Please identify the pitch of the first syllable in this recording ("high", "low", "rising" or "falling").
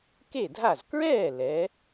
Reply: falling